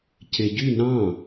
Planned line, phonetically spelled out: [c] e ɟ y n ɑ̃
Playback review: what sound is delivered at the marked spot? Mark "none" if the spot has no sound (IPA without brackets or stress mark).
c